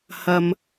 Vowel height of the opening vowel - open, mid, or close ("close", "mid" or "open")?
open